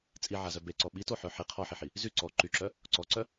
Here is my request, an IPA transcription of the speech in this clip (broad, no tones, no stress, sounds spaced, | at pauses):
t͡sʼ i ʕ a z œ b e ǀ ɔ ɓ i t o ħ œ ħ i qʰ ɔ ħ i ħ i | z y ǀ ɔ ǃ y ǁ œ | ǀ ɔ ǀ œ